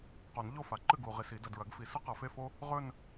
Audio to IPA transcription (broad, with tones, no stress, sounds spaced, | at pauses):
q o˨˩˦ n ʎ o˥˩ f a˨ ǃ ɨ˥˩ ɡ uː˨ ʁ i˨ s i˨˩˦ d ɐ˨ d ɹ ɐ˨˩˦ ɡ f i˨˩˦ s ɨ˥ q ɐ˨˩˦ f e˥˧ f o˥ | ʁ ɵ˥˧ n